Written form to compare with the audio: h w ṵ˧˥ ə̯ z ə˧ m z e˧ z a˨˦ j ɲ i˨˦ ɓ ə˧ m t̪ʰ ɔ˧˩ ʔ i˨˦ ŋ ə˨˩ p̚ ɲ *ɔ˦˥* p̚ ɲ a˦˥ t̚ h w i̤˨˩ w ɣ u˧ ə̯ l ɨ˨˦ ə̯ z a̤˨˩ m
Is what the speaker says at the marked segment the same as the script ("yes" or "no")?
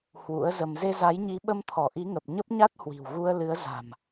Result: no